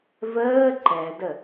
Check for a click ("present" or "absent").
present